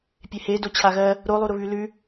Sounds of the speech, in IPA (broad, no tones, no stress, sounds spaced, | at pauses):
pʲ e h e d o t͡ɕʰ a ɣ ɜ | ɾ o lˠ u ɾ ʊ β ʉ l ʉ